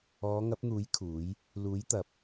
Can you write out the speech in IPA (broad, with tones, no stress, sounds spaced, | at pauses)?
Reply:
ɔː˨˧ ŋ ɐ˨˥ p̚ n̪ uː˨˥ j kʰ uː˨˥ j | l uː˨˥ j t̪ ɐ˨ p̚